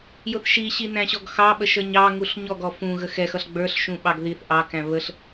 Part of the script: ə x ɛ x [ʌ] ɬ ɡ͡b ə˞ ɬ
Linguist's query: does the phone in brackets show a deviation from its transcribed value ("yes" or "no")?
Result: no